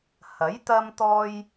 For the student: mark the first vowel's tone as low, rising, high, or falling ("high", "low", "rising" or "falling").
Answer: rising